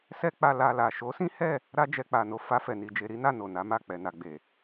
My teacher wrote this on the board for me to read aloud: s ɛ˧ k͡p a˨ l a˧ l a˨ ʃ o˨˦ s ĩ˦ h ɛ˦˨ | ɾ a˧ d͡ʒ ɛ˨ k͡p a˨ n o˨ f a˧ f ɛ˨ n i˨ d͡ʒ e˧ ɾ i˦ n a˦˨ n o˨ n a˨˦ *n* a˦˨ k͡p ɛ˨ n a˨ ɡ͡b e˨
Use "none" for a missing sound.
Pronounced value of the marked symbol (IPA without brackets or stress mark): m